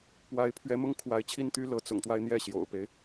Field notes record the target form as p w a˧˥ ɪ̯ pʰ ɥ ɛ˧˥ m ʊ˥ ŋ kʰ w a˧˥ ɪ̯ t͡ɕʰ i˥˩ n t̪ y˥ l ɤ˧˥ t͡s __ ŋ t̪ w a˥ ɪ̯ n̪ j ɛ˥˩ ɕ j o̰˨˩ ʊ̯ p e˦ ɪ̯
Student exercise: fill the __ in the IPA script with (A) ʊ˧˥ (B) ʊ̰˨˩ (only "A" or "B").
B